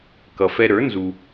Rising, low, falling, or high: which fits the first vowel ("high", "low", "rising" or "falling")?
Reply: low